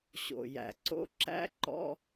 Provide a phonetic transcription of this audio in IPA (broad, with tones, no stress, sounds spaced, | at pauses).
ɕ o̰˨˩ j æ̰˨˩ ǀ o̰˧˥˧ ǁ æ̰˦˥ ǃ ɔ̰˧˥˧